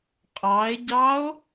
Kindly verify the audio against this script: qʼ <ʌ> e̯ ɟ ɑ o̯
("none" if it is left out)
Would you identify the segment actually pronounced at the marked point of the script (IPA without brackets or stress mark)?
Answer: ɑ